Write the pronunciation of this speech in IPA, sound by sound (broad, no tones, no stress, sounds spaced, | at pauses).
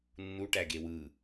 nː u ʈ æ ɡ e w ɯ